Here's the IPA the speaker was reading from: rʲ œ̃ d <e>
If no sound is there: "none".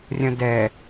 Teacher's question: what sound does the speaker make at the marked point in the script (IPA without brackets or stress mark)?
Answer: ɛ